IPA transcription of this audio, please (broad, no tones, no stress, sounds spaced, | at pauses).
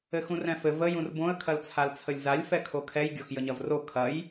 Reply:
ɘ x ũ r ɛ̃ f ɘ v ə j ũ r b õ ə̯ kʰ ɐ l t͡sʰ a l t͡sʰ ə lʲ z a lʲ f ɛ kʰ o kʰ ɛ j ɡʲ o x j ə ɲ ɐ v r o kʰ ɐ j